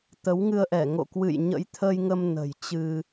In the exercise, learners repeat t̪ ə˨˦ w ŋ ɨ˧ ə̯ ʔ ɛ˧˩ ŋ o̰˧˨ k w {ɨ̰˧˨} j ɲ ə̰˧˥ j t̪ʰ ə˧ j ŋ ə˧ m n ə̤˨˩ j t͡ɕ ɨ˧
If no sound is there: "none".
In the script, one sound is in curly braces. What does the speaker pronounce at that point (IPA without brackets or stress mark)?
ɨ̰˧˨